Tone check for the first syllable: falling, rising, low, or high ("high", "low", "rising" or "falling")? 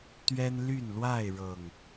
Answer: high